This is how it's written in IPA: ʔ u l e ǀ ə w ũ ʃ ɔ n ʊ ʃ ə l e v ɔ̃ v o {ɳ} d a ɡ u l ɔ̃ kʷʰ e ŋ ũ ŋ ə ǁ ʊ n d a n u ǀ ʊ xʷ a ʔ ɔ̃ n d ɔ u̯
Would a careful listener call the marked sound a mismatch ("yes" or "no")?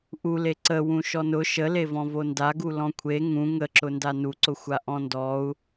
yes